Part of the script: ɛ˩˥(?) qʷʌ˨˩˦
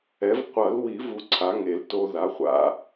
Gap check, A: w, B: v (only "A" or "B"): B